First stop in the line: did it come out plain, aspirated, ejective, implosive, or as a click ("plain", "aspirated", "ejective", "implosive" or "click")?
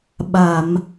implosive